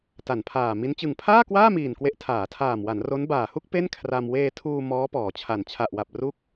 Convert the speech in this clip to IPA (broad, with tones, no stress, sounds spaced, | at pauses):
t a˩˦ n pʰ aː˨˩ m i˦˥ n t͡ɕ ɯ˨˩ ŋ pʰ aː˥˩ k w aː˥˩ m iː˨˩ n k w e˥˩ ʔ tʰ aː˩˦ tʰ aː˨˩ m w a˩˦ n r o˦˥ n b aː˨˩ h u˥˩ k̚ p e˥˩ n kʰ r a˧ m w eː˧ tʰ uː˧ m ɔː˦˥ p ɔː˩˦ t͡ɕʰ a˨˩ n t͡ɕʰ a˨˩ ʔ w a˨˩ p̚ r u˦˥ k̚